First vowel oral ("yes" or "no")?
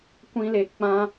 no